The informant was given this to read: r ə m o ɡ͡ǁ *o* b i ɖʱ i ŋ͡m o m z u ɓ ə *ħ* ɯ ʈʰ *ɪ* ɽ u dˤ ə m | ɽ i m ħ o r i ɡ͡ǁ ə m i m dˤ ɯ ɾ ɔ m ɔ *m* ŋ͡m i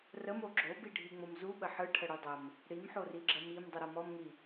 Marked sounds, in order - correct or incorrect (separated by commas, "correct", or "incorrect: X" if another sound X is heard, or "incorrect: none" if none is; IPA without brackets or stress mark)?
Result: correct, correct, incorrect: ə, correct